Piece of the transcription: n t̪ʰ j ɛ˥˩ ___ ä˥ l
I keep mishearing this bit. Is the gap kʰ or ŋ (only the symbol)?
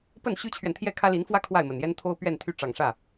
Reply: kʰ